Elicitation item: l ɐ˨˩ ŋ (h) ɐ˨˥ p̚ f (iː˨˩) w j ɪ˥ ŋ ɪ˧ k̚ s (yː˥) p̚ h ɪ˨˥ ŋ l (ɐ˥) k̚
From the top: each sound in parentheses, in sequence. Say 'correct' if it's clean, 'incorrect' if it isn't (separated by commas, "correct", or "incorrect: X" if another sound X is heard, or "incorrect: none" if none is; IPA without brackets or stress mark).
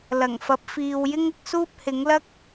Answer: incorrect: f, incorrect: iː˨, incorrect: uː˥, correct